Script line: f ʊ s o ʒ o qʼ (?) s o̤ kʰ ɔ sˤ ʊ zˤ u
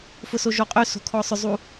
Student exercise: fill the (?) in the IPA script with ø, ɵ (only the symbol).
ø